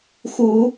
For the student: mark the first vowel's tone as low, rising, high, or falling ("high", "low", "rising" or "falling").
rising